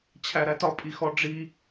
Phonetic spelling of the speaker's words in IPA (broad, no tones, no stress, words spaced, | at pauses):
t͡ɕʰæɾætɒ pʼixɔɖ͡ʐi